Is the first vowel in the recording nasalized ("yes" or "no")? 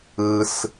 no